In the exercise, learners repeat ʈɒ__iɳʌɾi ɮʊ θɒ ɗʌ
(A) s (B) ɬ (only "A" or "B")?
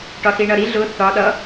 A